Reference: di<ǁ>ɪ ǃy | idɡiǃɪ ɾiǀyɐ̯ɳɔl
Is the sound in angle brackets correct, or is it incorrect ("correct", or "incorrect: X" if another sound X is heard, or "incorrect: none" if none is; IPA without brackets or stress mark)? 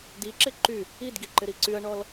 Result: correct